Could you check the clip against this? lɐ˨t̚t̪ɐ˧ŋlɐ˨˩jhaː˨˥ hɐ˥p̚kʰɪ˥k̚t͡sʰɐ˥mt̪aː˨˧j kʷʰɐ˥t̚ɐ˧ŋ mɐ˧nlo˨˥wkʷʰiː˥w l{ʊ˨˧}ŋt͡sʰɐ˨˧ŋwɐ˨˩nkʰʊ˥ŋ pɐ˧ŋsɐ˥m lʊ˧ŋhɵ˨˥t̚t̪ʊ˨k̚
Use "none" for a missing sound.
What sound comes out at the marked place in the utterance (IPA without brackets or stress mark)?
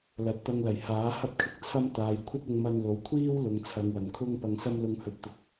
ʊ˨˧